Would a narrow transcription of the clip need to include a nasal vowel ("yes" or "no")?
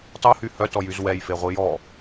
no